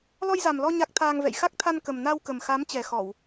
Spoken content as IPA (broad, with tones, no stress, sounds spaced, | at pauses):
l ɔ˧ j z a˨˩ m l ɔ˧ ɲ a˦˥ k̚ t̪ʰ aː˧ ŋ v ɛ̰˧˨ j x a˦˥ k̚ t̪ʰ a˧ n k ə˨˩ m n a˧ w k ə˨˩ m x a˨˦ m t͡ɕ ɛ˨˩ x ɔ˧˩˨ w